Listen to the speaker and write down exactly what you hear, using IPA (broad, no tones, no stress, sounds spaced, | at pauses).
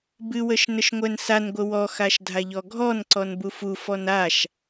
b ɨ w ə ʃ n ə ʃ ŋʷ ɛ n s a n ɡʷ ə w ɔ x a ʃ dʱ a ʎ ɔ ɡʱ ɔ n ǀ ɔ n b u f u f ɔ n a ʃ